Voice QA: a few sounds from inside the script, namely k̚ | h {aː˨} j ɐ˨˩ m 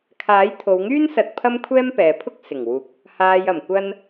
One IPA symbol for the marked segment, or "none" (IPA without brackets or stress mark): aː˨